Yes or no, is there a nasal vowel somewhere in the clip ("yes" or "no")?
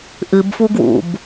no